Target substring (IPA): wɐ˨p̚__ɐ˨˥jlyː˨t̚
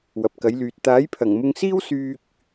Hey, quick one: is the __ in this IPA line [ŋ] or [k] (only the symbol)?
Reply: k